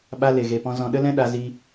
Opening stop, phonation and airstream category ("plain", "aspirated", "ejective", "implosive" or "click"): implosive